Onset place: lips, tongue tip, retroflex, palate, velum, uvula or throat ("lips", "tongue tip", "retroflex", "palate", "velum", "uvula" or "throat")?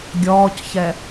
velum